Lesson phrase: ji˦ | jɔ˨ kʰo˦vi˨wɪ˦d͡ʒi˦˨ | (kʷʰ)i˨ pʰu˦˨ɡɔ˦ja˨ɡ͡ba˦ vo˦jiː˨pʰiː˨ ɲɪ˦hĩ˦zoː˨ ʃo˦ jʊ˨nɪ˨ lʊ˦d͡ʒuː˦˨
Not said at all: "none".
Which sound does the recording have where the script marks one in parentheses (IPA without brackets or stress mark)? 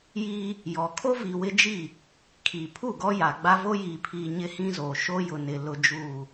kʰ